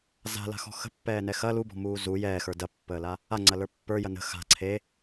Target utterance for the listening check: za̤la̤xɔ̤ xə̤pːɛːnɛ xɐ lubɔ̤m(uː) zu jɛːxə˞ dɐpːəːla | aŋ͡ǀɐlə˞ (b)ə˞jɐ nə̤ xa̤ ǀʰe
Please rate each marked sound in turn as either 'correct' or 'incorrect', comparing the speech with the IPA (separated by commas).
correct, incorrect